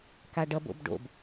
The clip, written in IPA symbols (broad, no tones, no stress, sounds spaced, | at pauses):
k a ɖ ʌ b o̰ b ɖ o̰ b